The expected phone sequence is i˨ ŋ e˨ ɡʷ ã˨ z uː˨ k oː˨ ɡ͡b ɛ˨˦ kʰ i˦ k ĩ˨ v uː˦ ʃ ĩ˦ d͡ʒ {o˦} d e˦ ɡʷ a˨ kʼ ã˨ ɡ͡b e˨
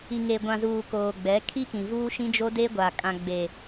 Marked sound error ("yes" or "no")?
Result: no